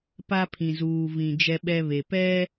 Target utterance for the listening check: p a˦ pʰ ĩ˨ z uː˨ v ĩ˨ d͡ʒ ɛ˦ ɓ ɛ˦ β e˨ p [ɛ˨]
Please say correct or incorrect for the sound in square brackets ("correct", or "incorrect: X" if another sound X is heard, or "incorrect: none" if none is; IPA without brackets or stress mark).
incorrect: ɛ˦